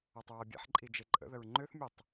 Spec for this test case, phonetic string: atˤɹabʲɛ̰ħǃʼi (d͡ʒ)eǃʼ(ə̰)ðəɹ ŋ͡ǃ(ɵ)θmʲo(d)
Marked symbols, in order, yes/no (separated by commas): yes, yes, no, no